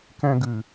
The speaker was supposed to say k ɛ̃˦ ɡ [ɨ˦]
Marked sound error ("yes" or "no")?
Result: yes